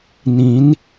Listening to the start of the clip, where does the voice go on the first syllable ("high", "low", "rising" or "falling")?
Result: rising